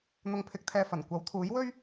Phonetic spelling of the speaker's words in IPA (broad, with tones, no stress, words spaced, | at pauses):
n̪ʊ˨ŋpʰɪ˨k̚t̪ʰɛː˨ fɐ˨˩nkʷɐ˨˥wt̪ʰuː˨˥jwɵ˥ɥ